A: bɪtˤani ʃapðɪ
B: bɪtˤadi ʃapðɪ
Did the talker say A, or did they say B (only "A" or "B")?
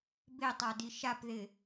B